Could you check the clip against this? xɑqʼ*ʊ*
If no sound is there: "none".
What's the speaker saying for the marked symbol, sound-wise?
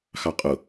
ʊ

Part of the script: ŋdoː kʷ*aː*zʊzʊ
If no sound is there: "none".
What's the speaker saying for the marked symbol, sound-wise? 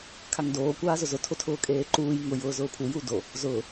aː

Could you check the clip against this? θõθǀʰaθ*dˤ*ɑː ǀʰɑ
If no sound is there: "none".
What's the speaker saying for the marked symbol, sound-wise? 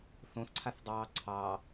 dˤ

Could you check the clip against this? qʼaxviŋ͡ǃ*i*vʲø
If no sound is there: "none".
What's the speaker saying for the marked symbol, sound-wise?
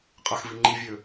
i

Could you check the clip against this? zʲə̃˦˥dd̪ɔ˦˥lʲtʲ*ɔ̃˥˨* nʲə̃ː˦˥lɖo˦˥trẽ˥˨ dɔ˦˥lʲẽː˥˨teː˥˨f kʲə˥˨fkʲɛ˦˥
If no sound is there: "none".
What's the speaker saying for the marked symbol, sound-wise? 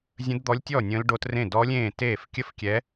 ɔ˥˨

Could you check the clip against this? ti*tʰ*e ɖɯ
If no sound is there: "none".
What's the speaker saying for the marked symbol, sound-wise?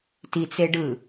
t͡s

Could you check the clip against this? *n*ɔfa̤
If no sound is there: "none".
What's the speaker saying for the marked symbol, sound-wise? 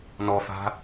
n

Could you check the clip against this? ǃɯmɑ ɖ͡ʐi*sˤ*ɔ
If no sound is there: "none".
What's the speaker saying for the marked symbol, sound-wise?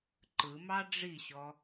ɕ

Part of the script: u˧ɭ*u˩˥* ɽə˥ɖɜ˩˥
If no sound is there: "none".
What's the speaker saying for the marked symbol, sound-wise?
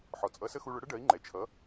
ʊ˩˥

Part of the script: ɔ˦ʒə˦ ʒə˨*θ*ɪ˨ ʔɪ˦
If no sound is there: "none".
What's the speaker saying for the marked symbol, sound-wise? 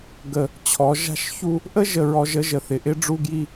θ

